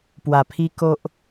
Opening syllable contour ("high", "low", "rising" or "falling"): low